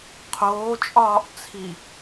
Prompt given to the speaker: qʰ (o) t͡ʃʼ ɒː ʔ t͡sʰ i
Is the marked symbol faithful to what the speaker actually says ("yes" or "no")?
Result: no